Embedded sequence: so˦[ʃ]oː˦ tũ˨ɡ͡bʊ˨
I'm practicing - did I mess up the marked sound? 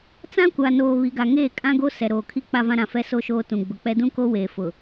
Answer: no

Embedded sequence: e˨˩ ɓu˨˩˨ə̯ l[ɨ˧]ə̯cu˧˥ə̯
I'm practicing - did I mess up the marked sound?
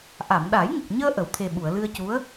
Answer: no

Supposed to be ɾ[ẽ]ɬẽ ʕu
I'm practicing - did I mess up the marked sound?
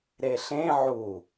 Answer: yes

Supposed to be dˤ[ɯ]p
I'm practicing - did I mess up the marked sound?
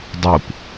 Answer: no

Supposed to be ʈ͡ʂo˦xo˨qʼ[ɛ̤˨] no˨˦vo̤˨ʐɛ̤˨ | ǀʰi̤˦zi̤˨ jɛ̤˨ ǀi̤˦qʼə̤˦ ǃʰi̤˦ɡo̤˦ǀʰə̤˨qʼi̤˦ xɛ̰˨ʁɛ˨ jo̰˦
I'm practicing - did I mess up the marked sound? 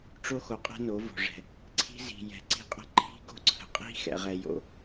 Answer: yes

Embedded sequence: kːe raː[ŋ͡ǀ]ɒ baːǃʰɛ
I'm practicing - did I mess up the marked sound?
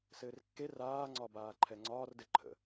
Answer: no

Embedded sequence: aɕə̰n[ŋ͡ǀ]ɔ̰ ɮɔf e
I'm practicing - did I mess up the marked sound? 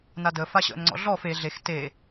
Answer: no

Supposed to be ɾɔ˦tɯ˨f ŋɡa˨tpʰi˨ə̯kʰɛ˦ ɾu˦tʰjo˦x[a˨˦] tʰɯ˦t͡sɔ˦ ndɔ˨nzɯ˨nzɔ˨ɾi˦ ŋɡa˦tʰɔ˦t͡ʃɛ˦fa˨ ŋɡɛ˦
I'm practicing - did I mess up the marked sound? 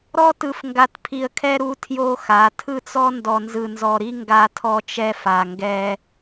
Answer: no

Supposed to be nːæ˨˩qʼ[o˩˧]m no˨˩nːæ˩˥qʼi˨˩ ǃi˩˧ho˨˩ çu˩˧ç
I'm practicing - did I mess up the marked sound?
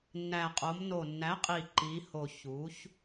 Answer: no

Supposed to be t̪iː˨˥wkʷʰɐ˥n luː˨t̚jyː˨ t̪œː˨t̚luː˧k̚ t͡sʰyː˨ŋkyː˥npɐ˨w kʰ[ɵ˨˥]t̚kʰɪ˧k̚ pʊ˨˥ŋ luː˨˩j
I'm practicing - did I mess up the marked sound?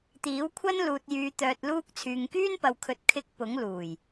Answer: no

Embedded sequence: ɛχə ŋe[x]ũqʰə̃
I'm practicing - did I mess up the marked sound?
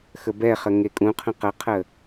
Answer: yes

